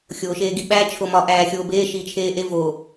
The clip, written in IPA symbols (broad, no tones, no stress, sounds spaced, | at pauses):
xʲ oː ʃ eː ɡ i ɓ æ t͡ʃʰ o m ɒ ʔ æː xʲ oː b eː ʃ iː t͡ʃʰ eː ʔ e v o